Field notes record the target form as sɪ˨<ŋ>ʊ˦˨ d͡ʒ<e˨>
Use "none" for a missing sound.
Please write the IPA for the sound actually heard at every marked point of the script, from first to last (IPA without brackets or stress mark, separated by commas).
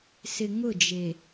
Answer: ŋ, e˨